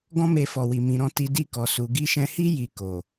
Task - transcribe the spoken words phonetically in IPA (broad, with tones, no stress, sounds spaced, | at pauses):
ɡ ɔ̃˦ m e˧ f ɔ˨ w i˨ m ĩ˨ ɾ ɔ̃˧ t i˧ d i˧ k ɔ˨ s u˨ ɡ i˧ ʃ ɛ̃˧ h i˦ j i˧ k o˨